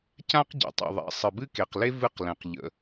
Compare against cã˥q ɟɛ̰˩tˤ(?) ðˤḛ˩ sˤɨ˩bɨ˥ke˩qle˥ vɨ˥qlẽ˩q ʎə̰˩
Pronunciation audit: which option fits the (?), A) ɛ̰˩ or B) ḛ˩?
A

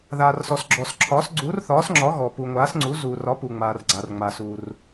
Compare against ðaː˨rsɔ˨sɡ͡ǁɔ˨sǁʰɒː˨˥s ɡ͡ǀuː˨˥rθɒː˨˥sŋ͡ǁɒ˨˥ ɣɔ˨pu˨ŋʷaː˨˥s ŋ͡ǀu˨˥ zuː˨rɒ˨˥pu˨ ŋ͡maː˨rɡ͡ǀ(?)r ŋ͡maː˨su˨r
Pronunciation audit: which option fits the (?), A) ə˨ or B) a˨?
B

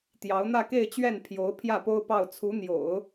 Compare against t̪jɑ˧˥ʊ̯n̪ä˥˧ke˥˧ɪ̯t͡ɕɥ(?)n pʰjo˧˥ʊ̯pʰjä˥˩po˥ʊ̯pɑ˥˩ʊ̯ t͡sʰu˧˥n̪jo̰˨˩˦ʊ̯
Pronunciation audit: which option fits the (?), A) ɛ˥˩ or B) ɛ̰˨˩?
A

